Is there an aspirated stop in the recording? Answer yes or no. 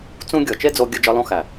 no